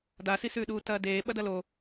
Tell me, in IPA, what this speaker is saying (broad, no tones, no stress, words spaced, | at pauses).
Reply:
dasisʉːɗuː tɐːdeː ɓɐdɐlo